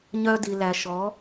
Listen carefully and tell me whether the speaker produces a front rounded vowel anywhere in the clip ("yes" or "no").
yes